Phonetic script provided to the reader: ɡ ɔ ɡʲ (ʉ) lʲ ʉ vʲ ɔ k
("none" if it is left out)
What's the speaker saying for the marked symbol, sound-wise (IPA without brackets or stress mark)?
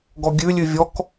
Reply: ʉ